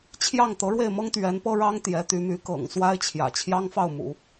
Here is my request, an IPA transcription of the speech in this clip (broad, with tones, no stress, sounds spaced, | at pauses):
t͡ɕʰ j ɑ˥˩ ŋ t̪ ɤ˧˥ ɻ w e˥˩ ɪ̯ m ɤ˥ ŋ t̪ ɥ ɛ˧˥ n p ɤ˥ ɻ ɑ˥ ŋ t̪ j ɛ˧˥ t̪ y˧˥ m y˧˥ k ɤ̰˨˩ ŋ s w a˥ ɪ̯ t͡ɕʰ j ä̰˨˩ t͡ɕʰ j ɑ˥ ŋ f ɑ˥˩ ʊ̯ m ṵ˨˩˦